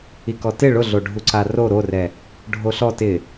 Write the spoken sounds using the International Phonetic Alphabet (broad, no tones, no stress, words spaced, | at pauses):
ikɔtɪ ɭʊɮoɖʱuǀa ro ɾorɛ | ɖʱoɬɔ tɪ